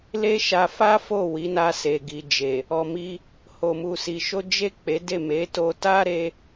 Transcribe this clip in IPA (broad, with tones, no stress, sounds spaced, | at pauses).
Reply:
l e˦ ʃ a˧ f a˦ f o˦˨ w i˨˦ n a˧ s e˨ ɡ i˨ d͡ʒ e˨ | ɔ˧ m i˦ | h o˧ m u˧ s i˧ ʃ o˦ d͡ʒ e˦˨ k͡p e˨˦ d e˦˨ m e˨˦ t o˧ t a˦ ɾ e˦